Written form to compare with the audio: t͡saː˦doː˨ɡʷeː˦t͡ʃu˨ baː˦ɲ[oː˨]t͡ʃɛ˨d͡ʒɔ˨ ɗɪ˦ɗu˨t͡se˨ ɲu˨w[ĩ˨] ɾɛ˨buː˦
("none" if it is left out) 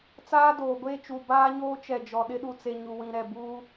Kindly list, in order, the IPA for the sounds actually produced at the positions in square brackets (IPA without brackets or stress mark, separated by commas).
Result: oː˦, ĩ˨